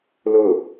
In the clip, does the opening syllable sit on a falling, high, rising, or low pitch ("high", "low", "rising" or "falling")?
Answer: falling